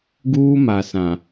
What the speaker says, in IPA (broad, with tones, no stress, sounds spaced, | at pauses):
ɡ uː˦ m a˨ s ã˨